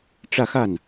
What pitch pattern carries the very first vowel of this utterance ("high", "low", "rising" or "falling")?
falling